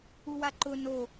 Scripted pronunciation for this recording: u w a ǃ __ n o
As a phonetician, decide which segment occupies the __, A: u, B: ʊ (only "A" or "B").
B